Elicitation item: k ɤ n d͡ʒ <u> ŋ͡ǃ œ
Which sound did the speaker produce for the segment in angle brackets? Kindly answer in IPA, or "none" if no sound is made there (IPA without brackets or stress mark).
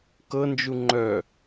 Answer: u